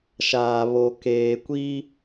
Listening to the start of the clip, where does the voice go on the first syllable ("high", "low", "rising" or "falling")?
low